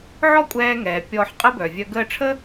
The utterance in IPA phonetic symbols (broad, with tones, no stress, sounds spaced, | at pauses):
ʕ ɔ˥ kʷʼ ɛː˧ ŋ ɛː˩ pʲ ɔː˧ ħ qʼ ə˥ b œ˩ vʲ œ˧ ɡ əː˧ ʈ͡ʂʰ əː˥